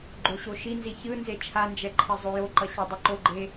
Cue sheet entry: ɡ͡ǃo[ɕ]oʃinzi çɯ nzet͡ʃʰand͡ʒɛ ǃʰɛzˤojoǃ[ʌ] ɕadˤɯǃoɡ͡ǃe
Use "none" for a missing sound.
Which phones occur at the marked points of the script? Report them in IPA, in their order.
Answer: ɕ, ʌ

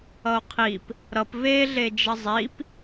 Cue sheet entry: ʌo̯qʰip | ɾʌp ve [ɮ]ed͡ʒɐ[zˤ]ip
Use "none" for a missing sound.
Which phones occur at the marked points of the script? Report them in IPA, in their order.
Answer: ɮ, zˤ

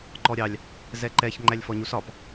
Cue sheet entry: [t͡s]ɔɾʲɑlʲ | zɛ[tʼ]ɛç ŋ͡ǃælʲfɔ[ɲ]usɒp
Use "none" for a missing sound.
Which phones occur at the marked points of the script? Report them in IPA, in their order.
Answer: ǃ, ǃ, ɲ

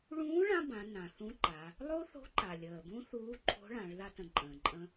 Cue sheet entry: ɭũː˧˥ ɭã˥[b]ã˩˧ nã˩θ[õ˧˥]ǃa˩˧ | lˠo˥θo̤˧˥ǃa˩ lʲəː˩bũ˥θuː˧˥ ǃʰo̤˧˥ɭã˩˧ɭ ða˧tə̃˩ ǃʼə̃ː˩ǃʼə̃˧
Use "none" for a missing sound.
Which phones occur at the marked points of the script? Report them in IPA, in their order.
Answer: b, ũ˧˥

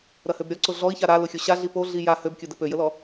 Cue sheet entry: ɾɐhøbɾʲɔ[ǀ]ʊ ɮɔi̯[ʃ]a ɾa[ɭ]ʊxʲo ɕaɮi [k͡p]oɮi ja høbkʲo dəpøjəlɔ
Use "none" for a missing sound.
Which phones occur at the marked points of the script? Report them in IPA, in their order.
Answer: ǀ, ç, l, p

